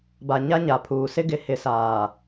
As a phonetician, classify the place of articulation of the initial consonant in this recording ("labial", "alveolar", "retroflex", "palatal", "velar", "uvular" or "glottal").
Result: labial